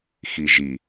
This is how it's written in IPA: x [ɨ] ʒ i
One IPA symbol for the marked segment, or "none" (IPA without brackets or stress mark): i